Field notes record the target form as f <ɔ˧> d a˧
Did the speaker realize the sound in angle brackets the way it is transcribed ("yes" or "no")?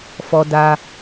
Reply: yes